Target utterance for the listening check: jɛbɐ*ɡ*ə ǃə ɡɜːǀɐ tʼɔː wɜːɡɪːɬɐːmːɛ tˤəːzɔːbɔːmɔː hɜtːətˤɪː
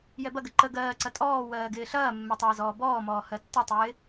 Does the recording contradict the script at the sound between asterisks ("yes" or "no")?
no